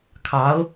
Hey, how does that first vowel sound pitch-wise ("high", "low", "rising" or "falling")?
rising